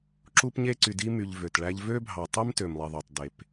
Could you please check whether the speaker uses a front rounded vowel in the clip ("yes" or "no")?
yes